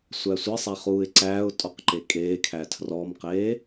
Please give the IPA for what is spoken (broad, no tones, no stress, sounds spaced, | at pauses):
sʷ æ sʷ e sˤ æ χ uː ɪ̯ ǀ æː ʊ̯ tʼ ɔ q ǃ e kʼ eː kʰ æ tʰ r ɔ m q eː